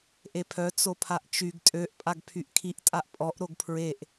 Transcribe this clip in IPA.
ʔ e pʰ œ t͡s o pʰ a ʔ t͡ʃ y ɡ tʼ ø ʔ pʼ a ɡ pʰ y ʔ kʰ i ʔ tʼ a ʔ pʼ ɔ ʔ ɾ o ɡ pʰ ɹ e ʔ

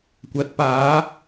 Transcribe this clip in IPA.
kʷ ɐ˨˥ t̚ p aː˨˥

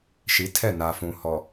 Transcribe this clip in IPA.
ʃ i˨˦ tʰ ɛ˦˨ n a˨ f ũ˨ h ɔ˨

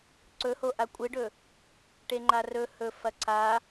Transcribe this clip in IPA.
ǀ ɵ h o ʔ a kʷʼ ɨ ɖ ɵ | ʈ e ŋ͡ǃ a r ɵ h ɵ f ɐ ǀʰ a

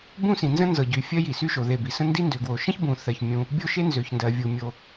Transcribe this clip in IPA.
b ũ˥ s ĩ˩ n z ə̃˥ n z ɤ˩ ɟ y˩ fʲ ɜ˥ j i˩ s y˥ ʃ o˩ ð e˩ b i˩ s ə̃˥ n d i˥ n d ø˩ ɡ w o˩ ʃ ə̃˥ ç b ũ˩ θ ɜ˩ ç mʲ ũ˩ | bʲ o˥ ʃ e˥ n z ø˩ ç n d ɜ˩ vʲ u˩ mʲ o˩

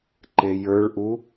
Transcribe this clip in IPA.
ǃ e j ə˞ ɭ ʔ u

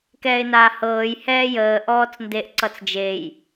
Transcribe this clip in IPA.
k ɛː ɪ̯ n aː h ɤː j h ɛː j əː ʔ ɔː t͡s n d e ʔ ǀ ʌ t͡s d͡ʒ e j

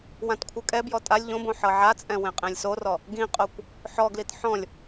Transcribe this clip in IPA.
w ã t kʷʰ ɯ kʼ ɛ b j ɔ tʼ a lʲ ʎ õ b õ ħ ɤ ʕ a t͡sʼ ɛ̃ w ẽ qʼ ẽ lʲ s o r ɔ | ɡ ĩ qʼ o kʷ | ħ ɔ ɡ l i t ħ ɔ̃ lʲ

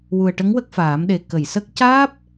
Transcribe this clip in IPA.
w u˨˩ ə̯ ʈ ə˧˥ ŋ w ə˦˥ k̚ f aː˨˩˦ m ɗ e˨˩ k ə˨˩˨ j s ə˦˥ k̚ c aː˦˥ p̚

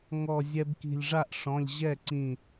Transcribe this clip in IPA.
ŋ ɔ˧˩ zʲ ɛ˧ b k i̤˧˩ lʲ ʐ a˥˩ ʔ ʂ ɔ̃˩˧˩ lʲ ʑ ɛ˥˩ ǀ ĩ˧˩

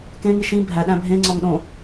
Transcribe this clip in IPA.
k ẽ ŋ i ʃ ĩ bʱ æ ɗ æ̃ bʱ ẽ ŋ͡ǀ ɒ ŋ ɗ õ

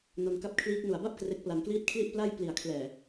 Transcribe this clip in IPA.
n o˧ n k a˦˥ p̚ kʰ l iː˦˥ k̚ n u˨˩ a̯ b a˥˩ p̚ k r e˦˥ k̚ p l a˧ n k l iː˥˩ t̚ kʰ l i˥˩ ʔ p l a˥˩ j p l i˨˩ a̯ kʰ l ɛː˨˩

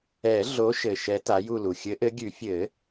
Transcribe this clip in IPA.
ɛ˨˩˦ ɮ o˨˦ ʃ ɘ˨˩ ʃ ɛ˨˦ t a˨˦ j u˦˨ l u˨˩ xʲ ɘ˨˦ ʔ ɘ˨˦ ɡʲ ʉ˨˩˦ fʲ ɘ˨˩˦

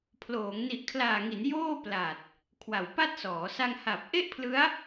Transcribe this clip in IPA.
pʰ l oː˩˦ ŋ n i˨˩ ʔ kʰ l aː˨˩ ŋ i˩˦ n j oː˥˩ p l a˨˩ t̚ | kʰ w a˨˩ w p a˥˩ t̚ s ɔː˩˦ s a˧ ŋ h a˨˩ p̚ ʔ e˥˩ ʔ pʰ l ɯ˦˥ a̯

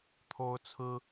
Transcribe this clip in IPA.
t̪ʰ o˦ ʊ̯ t͡sʰ ɹ̩˦

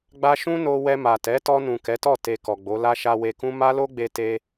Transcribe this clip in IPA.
ɡ͡b a˦ ʃ ũ˦ n o˧ w ɛ˧ m a˨ t ɛ˨˦ t ɔ˧ n ũ˨ k ɛ˨˦ t ɔ˦˨ t e˨ k ɔ˨ ɡ͡b o˨˦ l a˦ ʃ a˧ w e˧ k ũ˦ m a˦ l o˦ ɡ͡b e˧ t e˧

